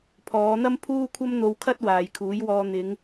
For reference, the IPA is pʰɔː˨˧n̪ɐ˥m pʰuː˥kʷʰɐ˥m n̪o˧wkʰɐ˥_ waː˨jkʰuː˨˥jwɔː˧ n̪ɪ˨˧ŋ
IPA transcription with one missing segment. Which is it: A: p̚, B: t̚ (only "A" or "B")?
B